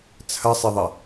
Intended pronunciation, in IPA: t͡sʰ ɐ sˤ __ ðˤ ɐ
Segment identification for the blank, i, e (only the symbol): e